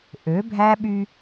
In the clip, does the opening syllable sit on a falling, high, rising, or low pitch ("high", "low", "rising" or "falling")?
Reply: rising